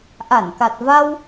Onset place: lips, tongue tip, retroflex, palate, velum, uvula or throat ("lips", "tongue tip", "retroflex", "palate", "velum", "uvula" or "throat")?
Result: throat